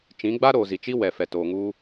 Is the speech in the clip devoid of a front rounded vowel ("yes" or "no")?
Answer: yes